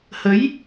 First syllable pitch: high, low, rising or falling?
rising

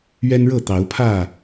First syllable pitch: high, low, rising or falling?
high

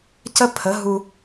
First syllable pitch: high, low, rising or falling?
high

